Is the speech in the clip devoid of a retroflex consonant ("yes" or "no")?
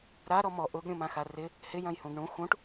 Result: no